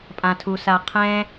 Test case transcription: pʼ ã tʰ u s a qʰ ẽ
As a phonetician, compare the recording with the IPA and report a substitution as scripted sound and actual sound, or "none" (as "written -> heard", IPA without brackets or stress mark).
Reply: ẽ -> ɛ̃